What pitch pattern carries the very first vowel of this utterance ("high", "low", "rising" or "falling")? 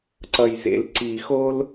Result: low